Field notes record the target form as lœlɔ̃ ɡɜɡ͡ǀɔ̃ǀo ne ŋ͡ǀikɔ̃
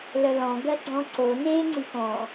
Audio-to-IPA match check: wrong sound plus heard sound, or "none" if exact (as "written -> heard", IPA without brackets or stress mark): none